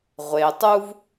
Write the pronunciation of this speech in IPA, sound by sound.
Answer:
ʁʷe˩ tˤu˦v

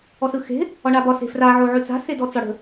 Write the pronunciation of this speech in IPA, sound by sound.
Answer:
ɔsɯxe̤ | ɒɳabɒ se̤fra ʕoʕʉt͡sa̤ sedɔt͡sɒɽə̤

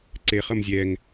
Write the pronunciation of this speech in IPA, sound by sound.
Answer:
ǀe χʌmzʲɛŋ

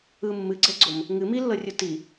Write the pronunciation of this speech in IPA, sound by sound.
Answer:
ɯ mːɨɡ͡ǀɛɡ͡ǀom | ŋɨ milːɤrʲu ti

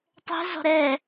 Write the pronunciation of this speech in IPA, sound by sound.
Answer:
tˤɛ̤zɔ̤ ɾɛ

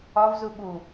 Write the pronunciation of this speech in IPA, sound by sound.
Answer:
ɒvzu ɓu

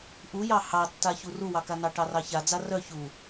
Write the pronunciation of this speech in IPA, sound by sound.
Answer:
ʔujɑ hɑtːa çuruwɑka nɑʈɑrɑça d͡zarœ çu

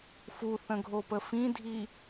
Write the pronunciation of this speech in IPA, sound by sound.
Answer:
fuθə̃ɡʱopə fĩdʱi

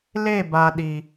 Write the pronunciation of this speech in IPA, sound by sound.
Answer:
le˦˨ba˨ ɗi˨

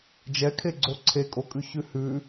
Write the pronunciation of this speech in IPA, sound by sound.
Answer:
d͡ʒɛkʰeɡ͡ǀo ǀʰekʼokʼʉçʉ hʉ

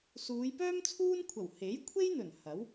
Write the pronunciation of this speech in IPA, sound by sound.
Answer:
suː˨˧jpœː˥m t͡sʰuː˥nkʷʰɐ˨˩w he˨˥j kʷʰe˥jn̪ɵ˨˩n hɐ˨˥w

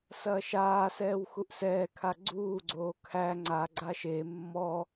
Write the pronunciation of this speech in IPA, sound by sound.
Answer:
sɐːʃaːsɛːw xuʔsɛːkʰa ɡ͡ǀuːɡ͡ǀoː kʰæ ŋ͡ǀa ɡ͡ǀaʃe mːɔ

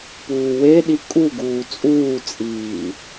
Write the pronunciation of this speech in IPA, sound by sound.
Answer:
puːweɗi kʼuɡuː t͡sʼuːt͡sʼiː

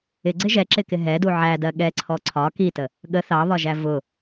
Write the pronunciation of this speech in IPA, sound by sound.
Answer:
ɪɡ͡ǀɪ ʒɛǁɪkɪ ɦɛdu ʕædɜ ɠɛǀʰɔ ǀʰɒ kitə | ɠə θɑβɒʒæ vʊ

